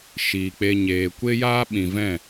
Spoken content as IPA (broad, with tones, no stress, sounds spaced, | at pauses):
ʃ iː˨ k͡p e˧ ɲ eː˨ kʷ e˦ j aː˦ ɓ ĩ˨ v ɛ̃˦˨